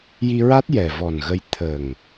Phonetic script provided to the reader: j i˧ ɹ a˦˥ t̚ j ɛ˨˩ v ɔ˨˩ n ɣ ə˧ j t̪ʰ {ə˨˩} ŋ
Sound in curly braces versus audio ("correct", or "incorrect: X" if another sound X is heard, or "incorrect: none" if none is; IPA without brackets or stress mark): correct